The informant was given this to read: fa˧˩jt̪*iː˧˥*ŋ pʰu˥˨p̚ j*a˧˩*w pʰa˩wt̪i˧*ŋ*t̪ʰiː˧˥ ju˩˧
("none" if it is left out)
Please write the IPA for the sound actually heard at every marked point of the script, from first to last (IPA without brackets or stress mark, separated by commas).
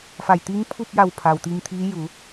iː˧˥, a˧˩, ŋ